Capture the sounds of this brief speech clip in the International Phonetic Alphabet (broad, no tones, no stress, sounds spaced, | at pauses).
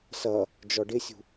s ʌ | d͡ʒ ɔ ɖ ɪ sʲ ṳ